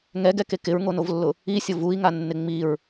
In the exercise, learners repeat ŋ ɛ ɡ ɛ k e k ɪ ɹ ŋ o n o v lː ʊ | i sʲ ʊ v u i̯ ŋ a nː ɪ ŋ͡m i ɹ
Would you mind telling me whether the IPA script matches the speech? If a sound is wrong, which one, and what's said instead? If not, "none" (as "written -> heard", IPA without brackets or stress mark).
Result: none